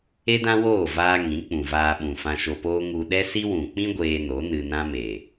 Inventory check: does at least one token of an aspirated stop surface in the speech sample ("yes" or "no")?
no